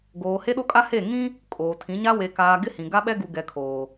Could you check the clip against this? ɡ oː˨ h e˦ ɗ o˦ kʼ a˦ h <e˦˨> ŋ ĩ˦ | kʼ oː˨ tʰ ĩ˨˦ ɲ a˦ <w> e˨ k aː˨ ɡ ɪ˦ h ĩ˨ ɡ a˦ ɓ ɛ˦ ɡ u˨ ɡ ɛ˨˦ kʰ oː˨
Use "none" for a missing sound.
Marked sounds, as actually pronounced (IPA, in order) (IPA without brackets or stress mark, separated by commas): e˦˨, w